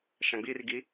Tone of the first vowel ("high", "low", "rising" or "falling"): low